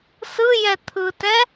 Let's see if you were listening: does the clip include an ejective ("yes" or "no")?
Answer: no